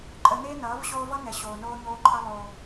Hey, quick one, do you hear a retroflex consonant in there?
no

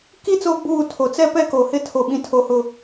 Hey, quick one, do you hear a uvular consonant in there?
no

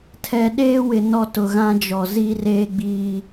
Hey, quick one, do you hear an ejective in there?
no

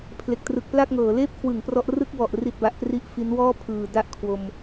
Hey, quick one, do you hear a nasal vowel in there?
no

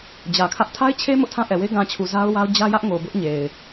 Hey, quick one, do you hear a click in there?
no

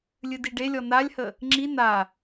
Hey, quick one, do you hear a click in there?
yes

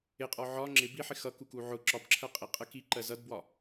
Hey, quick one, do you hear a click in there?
yes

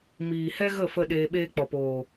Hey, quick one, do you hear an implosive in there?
yes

